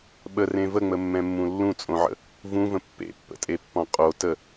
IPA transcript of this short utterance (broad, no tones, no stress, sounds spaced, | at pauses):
ɓ ə r ẽ v ə ŋ͡m ə mː ɛ̃ mː ũ lː ũ t͡sʼ õ ʕ ə̰ | v ũ v ə̃ pː ḛ pː ə̰ tʼ e pː ɔ̃ qʼ o t ə